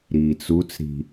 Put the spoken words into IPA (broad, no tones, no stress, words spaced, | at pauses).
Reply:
ɾiːt͡sut͡sɾi̤